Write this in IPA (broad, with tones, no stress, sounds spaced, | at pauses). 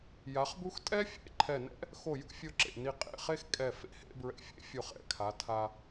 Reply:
j a˩˧ χ b u˥ x tʼ ɛ˥ fʲ ḛ˥˧ ǃʰ ɛ˧˩ n ɛ̰˥ | x o˧˩ j ṵ˥˧ fʲ o˧ ǁ ḛ˧˩ n i˧˩ qʼ ḛ˧˩ χ e˥˧ x kʼ ɛ˧˩ f ḛ˥ h ḛ˥˧ b ɹ ɛ̰˧˩ fʲ ḛ˥ fʲ o˧˩ χ ɛ̰˥˧ kʰ a˩˧ tʰ a˧